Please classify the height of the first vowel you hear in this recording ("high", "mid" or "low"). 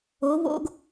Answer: mid